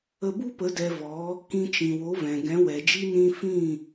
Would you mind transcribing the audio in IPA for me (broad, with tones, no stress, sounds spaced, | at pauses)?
ə˧ b u˦ p ə˨˦ d ɛ˧ v ɔ˨˦ | k ĩ˧ t͡ʃ ĩ˨ w o˨˦ v ɛ̃˨ ɡ ɛ̃˨˦ w ɛ˨ d͡ʒ i˦ n ĩ˦ f ĩ˦˨